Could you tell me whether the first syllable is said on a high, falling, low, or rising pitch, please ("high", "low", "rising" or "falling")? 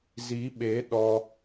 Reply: rising